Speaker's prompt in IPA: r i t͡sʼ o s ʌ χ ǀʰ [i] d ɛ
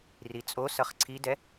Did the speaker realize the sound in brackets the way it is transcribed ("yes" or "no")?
yes